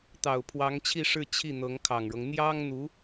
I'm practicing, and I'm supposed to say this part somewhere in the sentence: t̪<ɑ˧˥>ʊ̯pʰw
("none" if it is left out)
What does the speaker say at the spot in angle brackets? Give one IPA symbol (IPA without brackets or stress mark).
ɑ˨˩